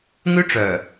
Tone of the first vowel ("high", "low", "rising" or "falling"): high